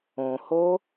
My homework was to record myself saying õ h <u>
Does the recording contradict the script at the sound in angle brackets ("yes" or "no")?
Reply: yes